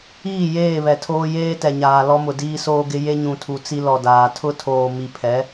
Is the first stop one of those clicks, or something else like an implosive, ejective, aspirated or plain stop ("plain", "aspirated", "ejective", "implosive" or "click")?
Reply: aspirated